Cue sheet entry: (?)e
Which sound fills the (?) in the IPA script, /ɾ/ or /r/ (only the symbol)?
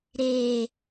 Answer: ɾ